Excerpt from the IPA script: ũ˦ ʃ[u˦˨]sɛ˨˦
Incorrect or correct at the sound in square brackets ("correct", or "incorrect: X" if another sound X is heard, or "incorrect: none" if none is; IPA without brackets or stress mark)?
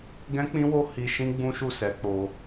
correct